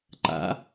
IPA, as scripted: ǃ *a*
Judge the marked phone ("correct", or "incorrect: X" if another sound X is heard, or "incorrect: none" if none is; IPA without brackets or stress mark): incorrect: a̰